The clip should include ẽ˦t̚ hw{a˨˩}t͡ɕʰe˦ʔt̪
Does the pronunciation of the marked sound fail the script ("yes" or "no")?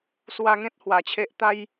yes